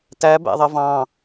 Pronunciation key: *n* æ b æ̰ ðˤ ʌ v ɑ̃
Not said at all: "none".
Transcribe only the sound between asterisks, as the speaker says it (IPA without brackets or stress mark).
t